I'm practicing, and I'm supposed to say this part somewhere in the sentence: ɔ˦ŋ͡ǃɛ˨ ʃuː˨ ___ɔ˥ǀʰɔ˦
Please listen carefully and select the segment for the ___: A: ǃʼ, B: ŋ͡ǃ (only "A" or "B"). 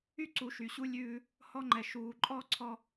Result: A